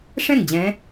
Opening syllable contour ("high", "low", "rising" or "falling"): falling